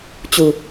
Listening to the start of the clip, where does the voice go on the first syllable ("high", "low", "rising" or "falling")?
low